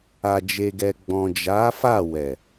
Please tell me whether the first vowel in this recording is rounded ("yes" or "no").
no